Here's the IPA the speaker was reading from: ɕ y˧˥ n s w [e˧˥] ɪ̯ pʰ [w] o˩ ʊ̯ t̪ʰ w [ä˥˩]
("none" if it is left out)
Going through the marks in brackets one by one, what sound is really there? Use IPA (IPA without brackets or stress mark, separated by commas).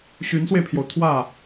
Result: e˧, j, ä˥˩